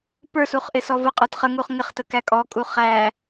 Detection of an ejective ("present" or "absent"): present